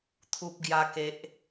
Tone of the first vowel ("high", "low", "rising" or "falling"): high